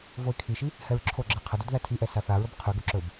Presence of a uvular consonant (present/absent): present